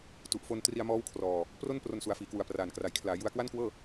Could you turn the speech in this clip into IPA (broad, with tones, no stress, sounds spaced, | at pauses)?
t u˨˩ ʔ f o˧ n t r i˧ a̯ m ɔː˦˥ w kʰ r ɔː˧ | p r o˥˩ n p r o˧ n s u˩˦ a̯ f iː˩˦ k w u˨˩ a̯ p r aː˨˩ n k r a˩˦ j kʰ l aː˩˦ j u˧ a̯ k w a˥˩ n k w ɤː˥˩